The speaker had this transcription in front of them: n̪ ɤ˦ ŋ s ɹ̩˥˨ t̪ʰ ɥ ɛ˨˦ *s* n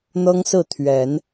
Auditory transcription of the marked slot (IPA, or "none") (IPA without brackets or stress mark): none